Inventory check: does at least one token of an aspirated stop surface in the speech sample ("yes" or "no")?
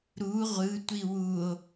no